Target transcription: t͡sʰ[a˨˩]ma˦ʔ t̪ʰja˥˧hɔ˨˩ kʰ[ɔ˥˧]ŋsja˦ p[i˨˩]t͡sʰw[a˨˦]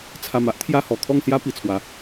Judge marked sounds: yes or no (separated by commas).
yes, yes, yes, yes